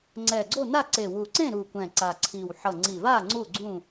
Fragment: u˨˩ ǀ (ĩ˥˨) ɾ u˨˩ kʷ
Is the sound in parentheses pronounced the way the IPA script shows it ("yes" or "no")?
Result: no